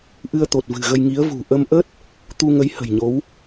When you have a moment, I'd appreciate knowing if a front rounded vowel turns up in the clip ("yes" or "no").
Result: no